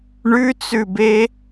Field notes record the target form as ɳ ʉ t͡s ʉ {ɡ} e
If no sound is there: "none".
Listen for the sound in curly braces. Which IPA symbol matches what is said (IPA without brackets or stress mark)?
b